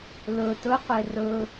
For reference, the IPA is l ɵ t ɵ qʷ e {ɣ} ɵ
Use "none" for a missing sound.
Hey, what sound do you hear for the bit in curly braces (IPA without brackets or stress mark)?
r